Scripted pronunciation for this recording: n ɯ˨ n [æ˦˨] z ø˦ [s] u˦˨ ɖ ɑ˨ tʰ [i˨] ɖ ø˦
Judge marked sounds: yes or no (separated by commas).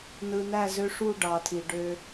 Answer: yes, no, yes